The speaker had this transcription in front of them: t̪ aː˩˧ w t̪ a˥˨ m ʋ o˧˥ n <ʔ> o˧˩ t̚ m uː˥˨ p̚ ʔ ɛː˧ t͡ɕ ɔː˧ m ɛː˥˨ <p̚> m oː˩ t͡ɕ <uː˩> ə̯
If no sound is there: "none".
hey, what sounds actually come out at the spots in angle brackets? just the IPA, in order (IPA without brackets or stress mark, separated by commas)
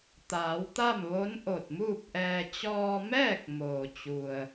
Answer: ʔ, k̚, u˩